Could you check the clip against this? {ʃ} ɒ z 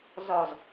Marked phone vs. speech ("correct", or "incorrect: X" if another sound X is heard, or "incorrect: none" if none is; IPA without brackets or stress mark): incorrect: z